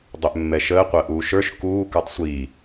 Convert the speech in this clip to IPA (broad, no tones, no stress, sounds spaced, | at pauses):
dˤ ʏ ʔ mː ɛ ʃ əː qʷ əː ʔ uː ʃ ə˞ ʃ k uː k ə˞ tˤ sʷ iː